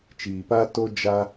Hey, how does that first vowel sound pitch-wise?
low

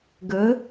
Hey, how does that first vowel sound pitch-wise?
rising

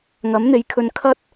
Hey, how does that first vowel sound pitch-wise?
rising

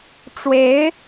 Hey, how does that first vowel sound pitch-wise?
rising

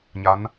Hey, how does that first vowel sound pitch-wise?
rising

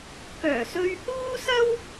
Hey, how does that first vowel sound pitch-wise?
low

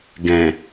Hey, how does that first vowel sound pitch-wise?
low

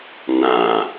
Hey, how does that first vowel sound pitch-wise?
low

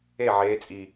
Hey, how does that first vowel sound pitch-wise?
falling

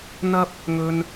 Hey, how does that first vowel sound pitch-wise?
high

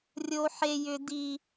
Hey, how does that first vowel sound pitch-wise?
high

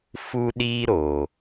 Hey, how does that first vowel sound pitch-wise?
high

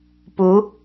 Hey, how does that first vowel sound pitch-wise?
rising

